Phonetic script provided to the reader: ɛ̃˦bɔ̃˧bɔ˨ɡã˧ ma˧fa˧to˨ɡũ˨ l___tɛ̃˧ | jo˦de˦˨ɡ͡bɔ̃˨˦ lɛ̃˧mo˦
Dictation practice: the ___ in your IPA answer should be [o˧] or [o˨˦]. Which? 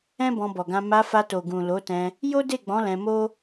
o˨˦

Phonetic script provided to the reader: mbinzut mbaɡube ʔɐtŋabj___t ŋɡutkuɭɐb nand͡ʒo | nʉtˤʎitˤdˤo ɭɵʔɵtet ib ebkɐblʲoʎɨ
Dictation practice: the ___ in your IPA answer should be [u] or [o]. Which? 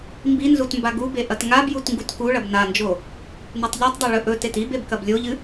u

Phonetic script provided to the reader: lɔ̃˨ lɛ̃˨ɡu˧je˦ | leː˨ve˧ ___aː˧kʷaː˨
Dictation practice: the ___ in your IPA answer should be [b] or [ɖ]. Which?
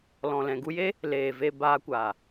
b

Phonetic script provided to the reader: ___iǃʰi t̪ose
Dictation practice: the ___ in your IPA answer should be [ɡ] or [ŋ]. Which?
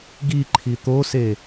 ɡ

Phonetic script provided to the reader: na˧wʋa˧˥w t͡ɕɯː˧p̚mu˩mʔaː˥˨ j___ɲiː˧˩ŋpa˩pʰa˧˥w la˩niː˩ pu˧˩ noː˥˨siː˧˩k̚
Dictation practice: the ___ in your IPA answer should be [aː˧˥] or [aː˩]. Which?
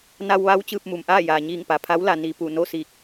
aː˩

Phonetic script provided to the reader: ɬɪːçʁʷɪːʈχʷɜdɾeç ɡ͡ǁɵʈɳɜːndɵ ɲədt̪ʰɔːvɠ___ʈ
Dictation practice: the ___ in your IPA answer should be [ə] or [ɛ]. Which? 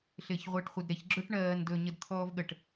ə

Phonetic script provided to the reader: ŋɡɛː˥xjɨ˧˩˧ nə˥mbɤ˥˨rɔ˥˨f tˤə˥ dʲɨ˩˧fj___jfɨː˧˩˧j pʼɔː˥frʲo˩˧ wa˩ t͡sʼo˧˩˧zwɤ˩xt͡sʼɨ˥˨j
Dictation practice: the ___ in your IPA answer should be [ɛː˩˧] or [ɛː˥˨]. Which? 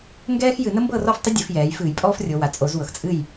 ɛː˩˧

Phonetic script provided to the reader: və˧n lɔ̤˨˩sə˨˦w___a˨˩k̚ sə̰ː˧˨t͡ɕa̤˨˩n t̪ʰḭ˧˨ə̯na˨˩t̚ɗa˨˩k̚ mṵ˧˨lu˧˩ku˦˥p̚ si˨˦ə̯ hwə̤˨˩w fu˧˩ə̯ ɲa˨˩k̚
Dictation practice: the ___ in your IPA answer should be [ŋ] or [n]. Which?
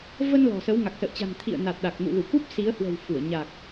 ŋ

